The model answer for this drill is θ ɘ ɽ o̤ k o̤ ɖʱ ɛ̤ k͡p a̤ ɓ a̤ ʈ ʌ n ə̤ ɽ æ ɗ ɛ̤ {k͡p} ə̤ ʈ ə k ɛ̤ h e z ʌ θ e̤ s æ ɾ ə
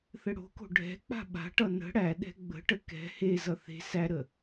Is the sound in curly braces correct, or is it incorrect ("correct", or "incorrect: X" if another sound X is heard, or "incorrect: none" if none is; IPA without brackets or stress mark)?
incorrect: ɡ͡b